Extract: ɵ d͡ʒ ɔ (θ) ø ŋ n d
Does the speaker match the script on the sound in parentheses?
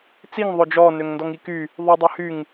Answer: no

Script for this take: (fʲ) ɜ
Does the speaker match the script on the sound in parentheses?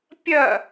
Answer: no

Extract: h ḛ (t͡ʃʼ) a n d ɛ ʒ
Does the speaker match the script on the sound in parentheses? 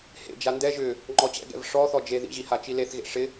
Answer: no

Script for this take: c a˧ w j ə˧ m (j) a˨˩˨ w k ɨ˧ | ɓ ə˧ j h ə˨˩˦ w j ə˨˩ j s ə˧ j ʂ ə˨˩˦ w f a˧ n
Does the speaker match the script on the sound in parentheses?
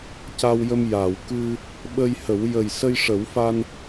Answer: yes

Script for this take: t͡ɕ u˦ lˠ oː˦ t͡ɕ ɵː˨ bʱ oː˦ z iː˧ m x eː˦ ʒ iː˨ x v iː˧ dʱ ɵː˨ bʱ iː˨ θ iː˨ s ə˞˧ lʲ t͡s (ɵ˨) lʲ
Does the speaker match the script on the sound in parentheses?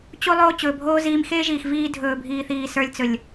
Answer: yes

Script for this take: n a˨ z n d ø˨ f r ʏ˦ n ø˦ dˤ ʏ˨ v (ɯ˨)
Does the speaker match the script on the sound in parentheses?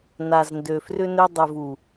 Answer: no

